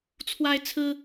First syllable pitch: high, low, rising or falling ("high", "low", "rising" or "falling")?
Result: high